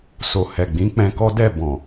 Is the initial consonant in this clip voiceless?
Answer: yes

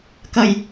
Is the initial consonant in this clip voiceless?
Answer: yes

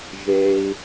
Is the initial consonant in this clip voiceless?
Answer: no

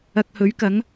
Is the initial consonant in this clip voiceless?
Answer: yes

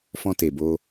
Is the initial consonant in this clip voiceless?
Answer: yes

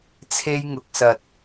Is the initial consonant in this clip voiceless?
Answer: yes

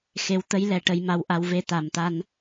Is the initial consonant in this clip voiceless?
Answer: yes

